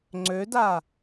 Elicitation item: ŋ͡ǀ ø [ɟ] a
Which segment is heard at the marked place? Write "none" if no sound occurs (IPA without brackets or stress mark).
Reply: d